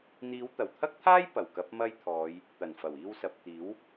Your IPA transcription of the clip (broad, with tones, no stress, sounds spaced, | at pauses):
n̪ iː˨˧ w t̪ ɐ˨˩ w t̪ʰ ɐ˥ k̚ t̪ʰ aː˥ j p ɐ˨˩ w k ɐ˨˥ p̚ m ɐ˥ j t̪ʰ ɔː˨˧ j | t̪ ɐ˨˩ n f ɐ˨˩ w iː˧ w s ɐ˨ p̚ t̪ iː˨˥ w